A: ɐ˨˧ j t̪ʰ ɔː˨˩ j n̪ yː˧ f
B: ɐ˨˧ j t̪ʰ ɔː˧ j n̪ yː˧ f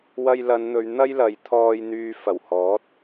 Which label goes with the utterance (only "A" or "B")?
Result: B